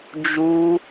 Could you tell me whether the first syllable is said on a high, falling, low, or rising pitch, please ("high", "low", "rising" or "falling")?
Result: high